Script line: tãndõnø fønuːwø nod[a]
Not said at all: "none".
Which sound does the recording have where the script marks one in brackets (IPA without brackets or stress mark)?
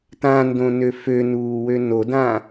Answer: ã